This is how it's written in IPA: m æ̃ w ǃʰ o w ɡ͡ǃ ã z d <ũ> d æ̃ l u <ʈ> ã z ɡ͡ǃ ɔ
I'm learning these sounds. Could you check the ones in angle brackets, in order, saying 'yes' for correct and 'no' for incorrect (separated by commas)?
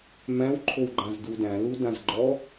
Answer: no, no